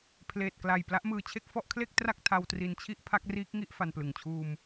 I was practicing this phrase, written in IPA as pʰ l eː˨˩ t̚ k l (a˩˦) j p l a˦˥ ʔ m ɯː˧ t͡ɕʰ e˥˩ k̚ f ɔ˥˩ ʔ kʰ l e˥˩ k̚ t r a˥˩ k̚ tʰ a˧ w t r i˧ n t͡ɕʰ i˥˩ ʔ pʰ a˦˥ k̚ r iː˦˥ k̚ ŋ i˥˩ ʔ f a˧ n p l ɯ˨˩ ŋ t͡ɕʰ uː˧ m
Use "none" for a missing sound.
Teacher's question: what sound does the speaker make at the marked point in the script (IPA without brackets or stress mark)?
a˨˩